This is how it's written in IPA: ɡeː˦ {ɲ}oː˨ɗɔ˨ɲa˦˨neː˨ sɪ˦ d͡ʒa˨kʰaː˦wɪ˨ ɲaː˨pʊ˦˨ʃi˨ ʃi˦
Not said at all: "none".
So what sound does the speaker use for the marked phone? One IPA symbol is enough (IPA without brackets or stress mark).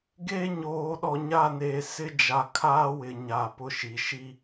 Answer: ɲ